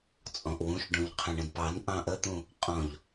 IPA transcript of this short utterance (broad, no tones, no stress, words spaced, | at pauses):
t͡sʼɔ̃ʔwũʃ ɖũʎqʰə̃ɳə̃dpɑn ʔɑ̃ʔət̪ũ | qʼɔ̃ʎ